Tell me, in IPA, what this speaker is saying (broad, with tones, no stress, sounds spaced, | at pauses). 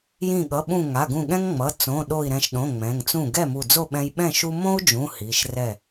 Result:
j ĩ˧˩ ɠ ʌ˩˧˩ ɓ ũ˧˩ ŋ a˩˧˩ ɡ ũ˧˩ ɠ ɛ̃˦ ŋ ŋ͡m ʌ˩˧˩ t͡s õ˩˧˩ ɗ o˧˩ i̯ ɾ ɛ̃˧˩ ʃ ɗ õ˩˧˩ ŋ͡m ɛ̃˩˧˩ ŋ t͡s ũ˥˩ ɡ ɛ˥˩ m u˧˩ d͡z o˥˩ ɓ ɛ̃˦ j ɓ ɛ̃˥˩ ʃ u˦ m õ˦ u̯ d͡ʒ ũ˩˧˩ h i˩˧˩ ʃ r ɛ˥˩